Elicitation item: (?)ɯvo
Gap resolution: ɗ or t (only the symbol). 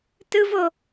t